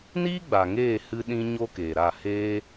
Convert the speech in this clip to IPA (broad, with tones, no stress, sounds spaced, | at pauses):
n iː˦ ɡ͡b a˨ ŋ eː˦˨ h ɨ˦ ɗ ĩ˦ ɲ o˦ k eː˨ ɾ a˦˨ h eː˦